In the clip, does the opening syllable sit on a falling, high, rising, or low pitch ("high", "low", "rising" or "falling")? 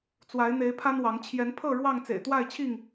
rising